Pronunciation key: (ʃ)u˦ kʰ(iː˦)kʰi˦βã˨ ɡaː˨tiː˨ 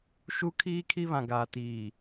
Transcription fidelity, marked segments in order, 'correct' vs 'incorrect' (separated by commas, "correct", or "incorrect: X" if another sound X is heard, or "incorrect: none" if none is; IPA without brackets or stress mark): correct, correct